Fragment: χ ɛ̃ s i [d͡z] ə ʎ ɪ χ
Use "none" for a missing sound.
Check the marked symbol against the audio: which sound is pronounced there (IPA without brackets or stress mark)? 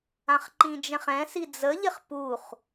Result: d͡z